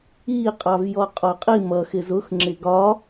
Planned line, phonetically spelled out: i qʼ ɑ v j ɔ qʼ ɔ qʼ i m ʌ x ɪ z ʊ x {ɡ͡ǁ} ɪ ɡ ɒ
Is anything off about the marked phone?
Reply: yes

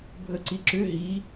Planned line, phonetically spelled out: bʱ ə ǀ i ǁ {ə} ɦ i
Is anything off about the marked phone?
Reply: yes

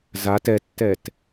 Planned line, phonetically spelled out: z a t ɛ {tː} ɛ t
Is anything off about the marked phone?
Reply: no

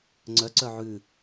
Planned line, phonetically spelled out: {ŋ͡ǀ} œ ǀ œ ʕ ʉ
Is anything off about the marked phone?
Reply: no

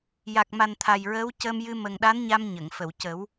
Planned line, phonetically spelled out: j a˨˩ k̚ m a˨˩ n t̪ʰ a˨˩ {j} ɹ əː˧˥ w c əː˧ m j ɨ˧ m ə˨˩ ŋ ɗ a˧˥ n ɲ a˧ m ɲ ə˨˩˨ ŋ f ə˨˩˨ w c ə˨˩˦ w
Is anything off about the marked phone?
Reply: no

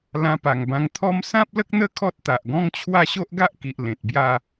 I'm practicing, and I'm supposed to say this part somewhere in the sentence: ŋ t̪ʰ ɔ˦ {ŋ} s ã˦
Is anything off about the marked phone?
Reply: yes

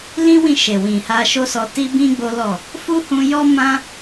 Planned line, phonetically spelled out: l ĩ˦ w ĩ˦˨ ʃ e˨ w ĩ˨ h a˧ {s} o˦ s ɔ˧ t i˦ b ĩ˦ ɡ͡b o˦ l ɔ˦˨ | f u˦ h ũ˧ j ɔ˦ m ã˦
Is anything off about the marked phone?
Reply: yes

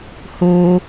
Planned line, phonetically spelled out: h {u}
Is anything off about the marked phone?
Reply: no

